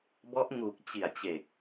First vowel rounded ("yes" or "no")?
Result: yes